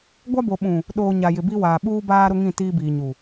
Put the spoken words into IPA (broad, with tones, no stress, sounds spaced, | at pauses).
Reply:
ɡʷ a˦ b o˨ ɓ ũ˨ | ɗ oː˨ ɲ a˨ j ɪ˨ b i˦ w aː˨ ɓ uː˦ b aː˦ ɾ ʊ˦ ŋ ĩ˦˨ t iː˦ b iː˨ ɲ u˨